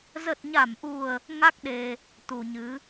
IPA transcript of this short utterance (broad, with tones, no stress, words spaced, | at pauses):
zə˨˩t̚ɲa˧˩mʔu˨˩ə̯ | ŋa˦˥k̚ɗe˧ | t̪u˨˩ɲɨ˨˦